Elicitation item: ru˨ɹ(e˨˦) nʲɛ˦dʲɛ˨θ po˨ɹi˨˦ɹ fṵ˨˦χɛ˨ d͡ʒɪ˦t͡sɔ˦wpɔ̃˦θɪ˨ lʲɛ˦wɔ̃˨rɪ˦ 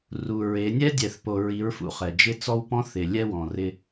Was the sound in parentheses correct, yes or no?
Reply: yes